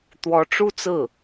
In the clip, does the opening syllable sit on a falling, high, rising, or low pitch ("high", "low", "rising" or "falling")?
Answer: rising